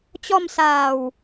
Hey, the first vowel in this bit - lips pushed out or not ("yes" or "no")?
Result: yes